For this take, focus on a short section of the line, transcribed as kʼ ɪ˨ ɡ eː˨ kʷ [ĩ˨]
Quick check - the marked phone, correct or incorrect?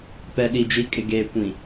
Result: correct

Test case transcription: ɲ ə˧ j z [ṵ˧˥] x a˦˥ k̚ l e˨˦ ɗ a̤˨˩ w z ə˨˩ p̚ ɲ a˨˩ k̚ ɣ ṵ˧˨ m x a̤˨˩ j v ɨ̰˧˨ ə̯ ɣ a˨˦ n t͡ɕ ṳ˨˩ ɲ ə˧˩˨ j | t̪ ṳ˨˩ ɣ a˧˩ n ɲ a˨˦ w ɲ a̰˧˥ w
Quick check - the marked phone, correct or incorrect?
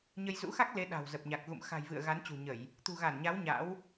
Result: correct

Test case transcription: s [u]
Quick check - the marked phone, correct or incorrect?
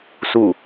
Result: correct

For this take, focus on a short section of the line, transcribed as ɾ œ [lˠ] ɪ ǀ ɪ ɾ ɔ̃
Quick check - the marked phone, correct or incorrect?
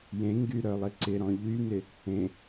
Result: correct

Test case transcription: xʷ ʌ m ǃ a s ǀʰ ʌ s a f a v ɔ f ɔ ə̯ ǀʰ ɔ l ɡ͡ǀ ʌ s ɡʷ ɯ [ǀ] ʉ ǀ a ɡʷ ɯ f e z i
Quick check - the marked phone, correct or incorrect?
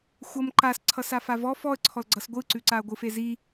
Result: correct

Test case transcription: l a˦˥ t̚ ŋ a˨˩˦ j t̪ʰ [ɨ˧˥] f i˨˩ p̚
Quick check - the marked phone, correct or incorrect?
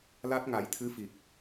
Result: correct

